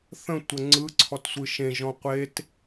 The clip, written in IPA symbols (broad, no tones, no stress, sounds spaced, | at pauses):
θ ə̃ tʷ ə ŋ͡ǀ ɯ ǀʰ ɔ t sʷ ɯ ʃ ẽ ʒ ɔ̃ qʷ e t